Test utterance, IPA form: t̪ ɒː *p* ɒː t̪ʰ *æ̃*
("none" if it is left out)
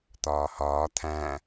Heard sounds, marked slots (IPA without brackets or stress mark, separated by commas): h, æ̃